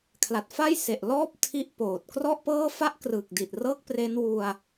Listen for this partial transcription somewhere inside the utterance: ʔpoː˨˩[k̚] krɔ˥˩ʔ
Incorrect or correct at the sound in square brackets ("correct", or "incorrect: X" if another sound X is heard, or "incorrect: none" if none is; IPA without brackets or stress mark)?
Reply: incorrect: t̚